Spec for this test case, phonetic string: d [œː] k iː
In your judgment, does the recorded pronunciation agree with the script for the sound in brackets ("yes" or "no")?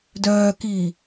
yes